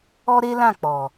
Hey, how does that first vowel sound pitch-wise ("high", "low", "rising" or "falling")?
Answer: high